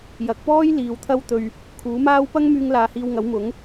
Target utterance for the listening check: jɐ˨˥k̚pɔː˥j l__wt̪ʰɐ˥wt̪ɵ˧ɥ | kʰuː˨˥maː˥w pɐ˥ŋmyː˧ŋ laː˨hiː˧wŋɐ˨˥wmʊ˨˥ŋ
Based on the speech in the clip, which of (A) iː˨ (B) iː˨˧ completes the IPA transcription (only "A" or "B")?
B